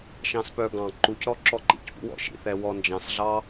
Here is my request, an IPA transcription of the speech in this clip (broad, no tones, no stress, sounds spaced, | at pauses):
ʃ ɑ̃ s p œ ɡ ɑ̃ ǃ u c ɾ ɔ ǁ ɔ ǃ ḭ c p ṵ w ɔ̰ ʃ ḭ θ ɛ w ɔ n d͡ʒ ɑ̃ s ɮ ɑ